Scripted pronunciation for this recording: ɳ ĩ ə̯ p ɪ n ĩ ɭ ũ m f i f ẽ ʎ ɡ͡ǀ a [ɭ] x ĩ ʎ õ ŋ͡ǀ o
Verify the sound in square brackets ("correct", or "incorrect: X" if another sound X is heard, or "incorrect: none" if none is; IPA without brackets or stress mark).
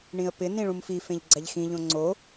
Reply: incorrect: ʎ